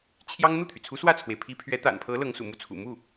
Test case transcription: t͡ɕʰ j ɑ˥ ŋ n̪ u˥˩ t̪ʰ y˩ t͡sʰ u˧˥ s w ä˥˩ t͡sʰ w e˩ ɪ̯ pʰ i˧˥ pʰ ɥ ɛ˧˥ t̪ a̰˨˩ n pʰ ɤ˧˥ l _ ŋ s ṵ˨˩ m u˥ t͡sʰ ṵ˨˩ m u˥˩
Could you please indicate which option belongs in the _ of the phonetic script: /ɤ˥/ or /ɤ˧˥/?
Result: ɤ˧˥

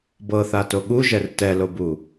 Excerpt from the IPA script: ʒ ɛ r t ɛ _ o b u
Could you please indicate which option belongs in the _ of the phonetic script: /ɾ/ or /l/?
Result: l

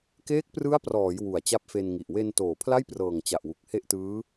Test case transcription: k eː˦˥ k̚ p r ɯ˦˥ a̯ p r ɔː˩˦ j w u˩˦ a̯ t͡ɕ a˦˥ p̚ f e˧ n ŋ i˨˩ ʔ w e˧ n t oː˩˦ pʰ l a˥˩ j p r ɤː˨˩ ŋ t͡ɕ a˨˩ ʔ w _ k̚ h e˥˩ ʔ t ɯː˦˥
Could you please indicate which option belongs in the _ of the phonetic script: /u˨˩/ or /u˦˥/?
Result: u˨˩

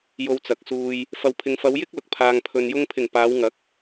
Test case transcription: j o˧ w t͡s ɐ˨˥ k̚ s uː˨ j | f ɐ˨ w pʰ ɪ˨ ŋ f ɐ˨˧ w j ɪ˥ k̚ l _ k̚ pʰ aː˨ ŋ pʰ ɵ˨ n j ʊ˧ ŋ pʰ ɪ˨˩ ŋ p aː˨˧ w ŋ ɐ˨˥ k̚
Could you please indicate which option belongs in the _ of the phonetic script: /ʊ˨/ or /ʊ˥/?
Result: ʊ˨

